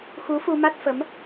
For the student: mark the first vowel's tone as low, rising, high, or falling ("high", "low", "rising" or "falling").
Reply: rising